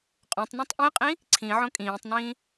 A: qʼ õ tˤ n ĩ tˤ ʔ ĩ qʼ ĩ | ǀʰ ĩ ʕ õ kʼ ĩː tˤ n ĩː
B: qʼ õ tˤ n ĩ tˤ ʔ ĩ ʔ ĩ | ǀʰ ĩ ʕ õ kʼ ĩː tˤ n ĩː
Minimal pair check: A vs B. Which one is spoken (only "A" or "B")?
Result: A